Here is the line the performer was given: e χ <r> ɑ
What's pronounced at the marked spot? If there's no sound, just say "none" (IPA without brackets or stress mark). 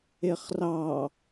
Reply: r